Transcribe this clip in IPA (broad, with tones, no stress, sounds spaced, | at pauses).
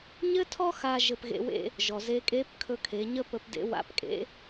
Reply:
ɲ ɘ˥ tʰ ɔ˥ x a˥ ʒ ɘ˧ p ɣ ḛ˧ w ḛ˥ | ʒ ɔ˩ z e˧˥ kʼ e˧˥ p kʰ ɵ˧ kʰ e˩˧ ɲ ə˥ p ə˧ p d ḛ˧˥ w a̰˧˥ p kʼ ḛ˧˥